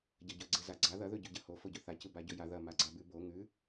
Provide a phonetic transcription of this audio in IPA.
ɟ ɐ ɟ ɵ ɡ͡ǀ e z a ɡ͡ǀ a ð ɐ ð ɵ ɟ ʉ ɟ ɐ h o f o ɟ ɵ θ a c ɨ b a ɟ ɵ j a ð ɐ m a ɡ͡ǀ a b ʉ b o ŋ ʉ

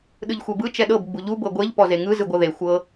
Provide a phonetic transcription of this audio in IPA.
ɗ ɯ ʎ xʷ ɛ b ɯ t͡ʃ ɛ ɗ ɤ b ɡ͡b u ʎ u b ɤ ɡʷ e ʎ p ɔ z e ŋ ɯ z ɯ ɡʷ ɤ ð e xʷ ɤ

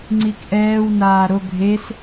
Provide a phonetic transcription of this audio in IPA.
ŋ͡ǀ i k ʔ ɛː w n aː ɾ o ɡʱ e s

